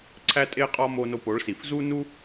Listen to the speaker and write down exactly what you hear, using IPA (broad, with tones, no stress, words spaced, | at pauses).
ǀʰæ˦tʼe˦qʼɒ˦mo˧ no˧po˨˦ɭsi˨f zu˦nu˦